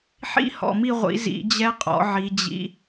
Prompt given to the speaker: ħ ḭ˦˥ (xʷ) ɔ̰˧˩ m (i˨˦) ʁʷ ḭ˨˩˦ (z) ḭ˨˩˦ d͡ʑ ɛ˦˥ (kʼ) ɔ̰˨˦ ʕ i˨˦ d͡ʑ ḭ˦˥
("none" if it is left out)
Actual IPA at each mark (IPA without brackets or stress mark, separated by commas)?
h, i˥˨, z, qʼ